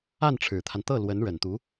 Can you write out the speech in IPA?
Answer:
a˥˩ n ʈ͡ʂʰ ɻ̩˨˩ t̪ʰ a˦ n t̪ ɤ˥˩ l w ə˧˥ n ɻ ə˨˩ n t̪ u˧˥

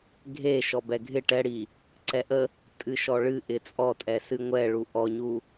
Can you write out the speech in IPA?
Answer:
ɡʱ e ʃ ɔ b ɛ ɡʱ ɪ ʈ ɛ ɽ i | ǀ ɛ ʔ ə | tʼ ɨ ʃ ɔ ɭ ɨ ʔ ɪ t͡sʼ ɔ tʼ ɛ s ɨ ŋʷ ɛ ɭ u ʔ ɔ ɲ u

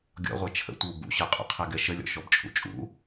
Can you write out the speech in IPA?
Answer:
ɡʲ ɔ̰ ʁʷ ɛ t͡ʃʰ ə̰ tʷ ɯ w b ṵ ɕ ɤ qʼ ṵ qʰ ɛ ɡ ɛ ʃ ə lʲ ɔ̰ ʃ ɔ b t͡ʃʼ ṵ t͡ʃʼ ṵ

